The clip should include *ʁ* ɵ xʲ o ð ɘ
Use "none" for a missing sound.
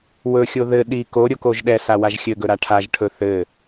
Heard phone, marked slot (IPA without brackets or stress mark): w